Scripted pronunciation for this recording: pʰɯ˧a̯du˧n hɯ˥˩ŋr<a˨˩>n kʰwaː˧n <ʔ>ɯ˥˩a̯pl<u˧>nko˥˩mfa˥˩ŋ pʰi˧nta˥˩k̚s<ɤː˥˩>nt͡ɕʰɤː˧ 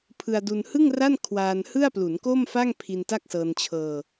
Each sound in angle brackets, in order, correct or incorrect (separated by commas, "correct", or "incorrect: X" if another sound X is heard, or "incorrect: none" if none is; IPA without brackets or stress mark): incorrect: a˥˩, incorrect: h, incorrect: u˩˦, incorrect: ɤː˧